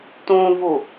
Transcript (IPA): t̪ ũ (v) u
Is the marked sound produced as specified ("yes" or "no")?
yes